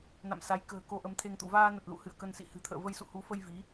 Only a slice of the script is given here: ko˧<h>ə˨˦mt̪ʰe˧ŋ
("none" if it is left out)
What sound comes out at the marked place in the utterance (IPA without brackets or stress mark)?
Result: ʔ